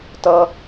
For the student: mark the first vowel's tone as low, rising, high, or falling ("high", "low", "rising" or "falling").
high